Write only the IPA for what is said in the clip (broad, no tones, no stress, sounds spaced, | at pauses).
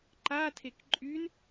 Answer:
ǃ a tʰ e k ǃʼ y n